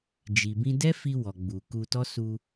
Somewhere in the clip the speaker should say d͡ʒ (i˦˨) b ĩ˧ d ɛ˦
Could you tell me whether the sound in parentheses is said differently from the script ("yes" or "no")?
yes